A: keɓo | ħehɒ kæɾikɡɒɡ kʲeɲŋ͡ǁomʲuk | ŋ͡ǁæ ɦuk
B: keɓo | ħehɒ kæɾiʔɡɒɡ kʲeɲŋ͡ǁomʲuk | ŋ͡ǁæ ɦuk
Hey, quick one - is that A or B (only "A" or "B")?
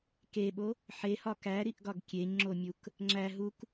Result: B